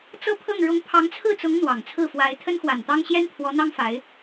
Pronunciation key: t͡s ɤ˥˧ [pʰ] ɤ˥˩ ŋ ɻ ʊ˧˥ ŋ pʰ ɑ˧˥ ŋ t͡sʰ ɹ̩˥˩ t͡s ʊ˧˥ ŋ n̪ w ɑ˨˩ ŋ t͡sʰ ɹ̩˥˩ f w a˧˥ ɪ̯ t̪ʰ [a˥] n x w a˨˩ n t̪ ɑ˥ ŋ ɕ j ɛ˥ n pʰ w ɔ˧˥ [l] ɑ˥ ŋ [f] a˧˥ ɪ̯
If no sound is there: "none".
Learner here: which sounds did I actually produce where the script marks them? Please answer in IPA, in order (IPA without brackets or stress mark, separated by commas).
pʰ, ə˥, n̪, f